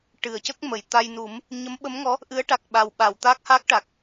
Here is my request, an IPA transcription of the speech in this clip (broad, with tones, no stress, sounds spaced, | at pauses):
ʈ ɨ˨˩˨ ə̯ c ə˦˥ k̚ m ə˨˩˨ j t̪ a˧ j n u˨˩˦ m | ɲ ə˧˥ m ɓ ə˧˥ m ŋ ɔ˧˥ | ʔ ɨ˧˥ ə̯ ʈ a˨˩ k̚ ɓ a˨˩ w ɓ a˨˩˨ w t̪ a˦˥ k̚ h a˦˥ k̚ ʈ a˨˩ k̚